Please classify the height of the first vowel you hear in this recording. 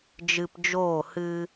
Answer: high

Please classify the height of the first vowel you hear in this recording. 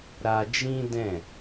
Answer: low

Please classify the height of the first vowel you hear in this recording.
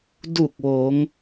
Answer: high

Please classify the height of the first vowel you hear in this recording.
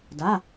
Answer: low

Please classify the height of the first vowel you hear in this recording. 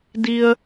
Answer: high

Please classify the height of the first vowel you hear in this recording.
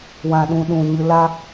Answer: low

